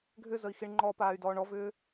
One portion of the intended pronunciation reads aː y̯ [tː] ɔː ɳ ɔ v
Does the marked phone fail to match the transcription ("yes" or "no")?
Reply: yes